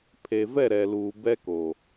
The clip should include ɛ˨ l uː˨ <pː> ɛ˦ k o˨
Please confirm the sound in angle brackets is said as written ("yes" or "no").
no